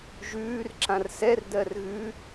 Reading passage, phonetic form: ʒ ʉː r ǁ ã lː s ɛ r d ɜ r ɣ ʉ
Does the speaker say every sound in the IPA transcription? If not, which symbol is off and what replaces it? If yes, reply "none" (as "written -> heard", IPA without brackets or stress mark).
lː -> r